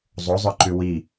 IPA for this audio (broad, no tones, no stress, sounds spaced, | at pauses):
zˤ o zˤ œ ǃ ʉ w i